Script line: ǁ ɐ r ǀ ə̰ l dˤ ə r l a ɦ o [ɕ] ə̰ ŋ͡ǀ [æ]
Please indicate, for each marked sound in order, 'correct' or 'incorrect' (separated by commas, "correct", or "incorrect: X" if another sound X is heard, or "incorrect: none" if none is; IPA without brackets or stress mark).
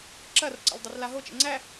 incorrect: t͡ʃ, correct